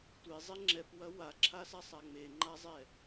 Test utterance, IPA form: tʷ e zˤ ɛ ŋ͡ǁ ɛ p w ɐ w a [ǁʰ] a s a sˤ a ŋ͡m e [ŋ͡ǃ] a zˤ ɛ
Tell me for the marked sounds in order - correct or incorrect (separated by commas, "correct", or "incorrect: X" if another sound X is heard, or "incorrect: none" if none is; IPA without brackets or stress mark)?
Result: correct, correct